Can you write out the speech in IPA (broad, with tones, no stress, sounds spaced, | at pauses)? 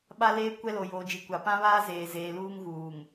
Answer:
ɓ a˦ l eː˦ kʷ ɛ˦ l o˨ j oː˨ d͡ʒ i˨ kʷ a˨ p ã˦ β aː˦ z eː˨ z eː˨ l uː˦ ŋ ɣ uː˨ ŋ